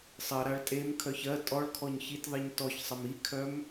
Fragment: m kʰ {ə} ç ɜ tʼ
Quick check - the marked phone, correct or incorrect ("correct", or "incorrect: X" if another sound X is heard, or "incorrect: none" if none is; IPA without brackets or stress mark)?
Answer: incorrect: œ